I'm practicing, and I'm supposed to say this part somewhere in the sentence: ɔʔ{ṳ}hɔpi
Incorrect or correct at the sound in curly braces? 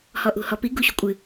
correct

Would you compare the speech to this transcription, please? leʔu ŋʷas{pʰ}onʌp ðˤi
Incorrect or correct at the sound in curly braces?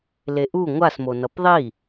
incorrect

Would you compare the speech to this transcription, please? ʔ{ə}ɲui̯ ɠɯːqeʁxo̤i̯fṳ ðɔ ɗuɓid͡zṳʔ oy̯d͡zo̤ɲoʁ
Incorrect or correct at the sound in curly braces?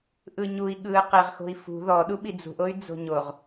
incorrect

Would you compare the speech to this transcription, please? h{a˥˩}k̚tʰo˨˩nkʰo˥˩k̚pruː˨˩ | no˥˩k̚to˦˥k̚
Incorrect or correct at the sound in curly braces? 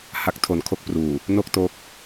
incorrect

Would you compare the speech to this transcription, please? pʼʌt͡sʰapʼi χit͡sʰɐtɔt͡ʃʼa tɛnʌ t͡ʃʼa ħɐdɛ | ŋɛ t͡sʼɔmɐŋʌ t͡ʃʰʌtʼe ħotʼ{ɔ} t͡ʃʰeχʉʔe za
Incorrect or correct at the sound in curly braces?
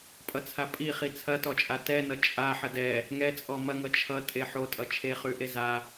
incorrect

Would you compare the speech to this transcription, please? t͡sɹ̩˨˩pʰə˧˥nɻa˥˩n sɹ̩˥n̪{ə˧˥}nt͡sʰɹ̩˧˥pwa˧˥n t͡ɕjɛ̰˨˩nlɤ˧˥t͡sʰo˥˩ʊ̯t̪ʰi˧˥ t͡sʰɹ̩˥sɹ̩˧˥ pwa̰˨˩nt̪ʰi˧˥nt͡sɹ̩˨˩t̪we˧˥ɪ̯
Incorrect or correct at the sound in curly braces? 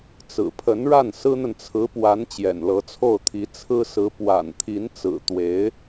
incorrect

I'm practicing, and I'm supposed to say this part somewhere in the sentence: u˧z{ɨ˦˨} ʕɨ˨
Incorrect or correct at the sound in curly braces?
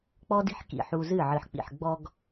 correct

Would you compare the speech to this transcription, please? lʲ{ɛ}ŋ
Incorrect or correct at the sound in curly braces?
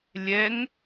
correct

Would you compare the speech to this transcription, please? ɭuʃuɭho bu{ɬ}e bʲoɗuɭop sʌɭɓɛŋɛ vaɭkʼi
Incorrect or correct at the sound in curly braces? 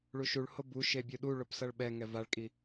incorrect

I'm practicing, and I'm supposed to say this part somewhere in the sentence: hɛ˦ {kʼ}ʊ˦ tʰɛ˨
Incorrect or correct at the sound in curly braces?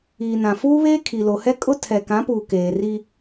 correct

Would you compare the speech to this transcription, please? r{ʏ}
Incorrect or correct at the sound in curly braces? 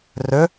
correct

